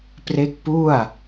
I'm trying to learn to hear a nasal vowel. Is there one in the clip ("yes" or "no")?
no